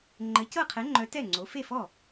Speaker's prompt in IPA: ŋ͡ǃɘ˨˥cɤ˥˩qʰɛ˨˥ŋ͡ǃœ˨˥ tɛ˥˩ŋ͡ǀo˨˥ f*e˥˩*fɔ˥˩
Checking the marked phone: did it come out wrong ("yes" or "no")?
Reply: no